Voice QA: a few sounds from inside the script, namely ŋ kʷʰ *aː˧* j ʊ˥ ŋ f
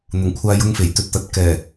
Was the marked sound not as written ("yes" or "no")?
no